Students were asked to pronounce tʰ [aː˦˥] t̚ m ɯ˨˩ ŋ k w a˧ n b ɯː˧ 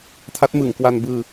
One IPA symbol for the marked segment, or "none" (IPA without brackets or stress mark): a˦˥